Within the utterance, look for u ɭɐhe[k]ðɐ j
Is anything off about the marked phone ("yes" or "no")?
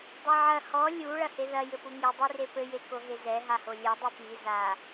yes